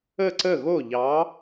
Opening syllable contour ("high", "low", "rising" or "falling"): falling